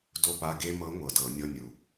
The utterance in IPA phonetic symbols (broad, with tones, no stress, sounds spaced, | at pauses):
d o˧ p a˧˥˧ ɡ e˧ m ɤ˧˥ ŋʷ ɤ˨˩ d ɤ˧˩˧ nʲ ɤ˧˥˧ nʲ u˨˩